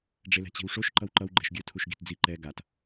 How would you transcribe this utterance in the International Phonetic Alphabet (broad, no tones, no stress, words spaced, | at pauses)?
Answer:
ɖ͡ʐelɛ̤t͡ɕi̤wʂoʃ ǃʌwǃʌw ɡ͡ǃɛ̤ʃɡʲɯ tʰuʃɡi̤td͡zi ǃɛ ɡat